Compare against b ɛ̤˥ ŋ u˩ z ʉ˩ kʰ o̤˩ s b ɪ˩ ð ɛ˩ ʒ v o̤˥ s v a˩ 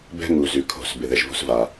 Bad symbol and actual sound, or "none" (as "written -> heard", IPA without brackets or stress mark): none